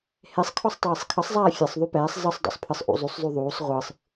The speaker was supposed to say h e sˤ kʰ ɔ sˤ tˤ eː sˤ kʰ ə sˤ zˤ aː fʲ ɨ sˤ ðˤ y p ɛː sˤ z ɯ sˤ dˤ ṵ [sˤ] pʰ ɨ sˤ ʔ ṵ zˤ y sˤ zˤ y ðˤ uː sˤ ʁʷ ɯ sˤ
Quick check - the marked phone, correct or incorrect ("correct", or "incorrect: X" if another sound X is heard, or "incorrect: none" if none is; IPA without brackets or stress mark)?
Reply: correct